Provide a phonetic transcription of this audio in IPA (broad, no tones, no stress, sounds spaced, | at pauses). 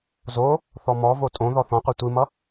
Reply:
z o | θ ɔ m ɔ v o tʼ õ ð ɔ θ ɔ̃ qʷ i tʷ i m ʌ